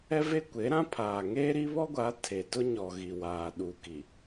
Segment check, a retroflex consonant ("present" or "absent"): absent